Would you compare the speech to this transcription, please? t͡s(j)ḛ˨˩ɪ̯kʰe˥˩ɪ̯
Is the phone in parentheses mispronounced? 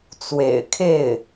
yes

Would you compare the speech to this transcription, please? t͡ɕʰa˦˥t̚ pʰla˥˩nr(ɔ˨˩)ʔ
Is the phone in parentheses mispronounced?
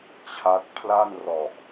no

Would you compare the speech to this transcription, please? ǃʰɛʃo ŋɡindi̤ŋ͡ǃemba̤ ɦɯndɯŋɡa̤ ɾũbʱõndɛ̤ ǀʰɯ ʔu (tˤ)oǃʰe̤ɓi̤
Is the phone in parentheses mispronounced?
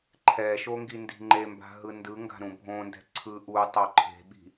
no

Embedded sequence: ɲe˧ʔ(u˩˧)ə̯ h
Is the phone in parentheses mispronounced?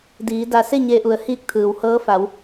no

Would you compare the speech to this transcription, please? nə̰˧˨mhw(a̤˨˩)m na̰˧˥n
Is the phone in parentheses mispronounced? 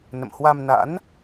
yes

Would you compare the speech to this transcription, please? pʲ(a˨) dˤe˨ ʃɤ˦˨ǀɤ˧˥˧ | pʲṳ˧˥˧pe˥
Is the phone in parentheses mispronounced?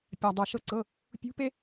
no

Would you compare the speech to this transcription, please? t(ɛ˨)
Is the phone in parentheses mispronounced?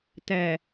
no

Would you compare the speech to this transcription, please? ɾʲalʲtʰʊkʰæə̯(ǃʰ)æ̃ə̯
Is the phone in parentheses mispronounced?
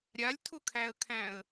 yes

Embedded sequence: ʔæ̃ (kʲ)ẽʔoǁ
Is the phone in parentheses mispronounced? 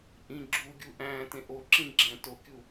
yes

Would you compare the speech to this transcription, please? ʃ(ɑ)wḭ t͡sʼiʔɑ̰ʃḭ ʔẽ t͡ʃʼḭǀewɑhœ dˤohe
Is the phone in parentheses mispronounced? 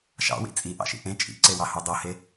yes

